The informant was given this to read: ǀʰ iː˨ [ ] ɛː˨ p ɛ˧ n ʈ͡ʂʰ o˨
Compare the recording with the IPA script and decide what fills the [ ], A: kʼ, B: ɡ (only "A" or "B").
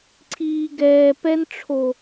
B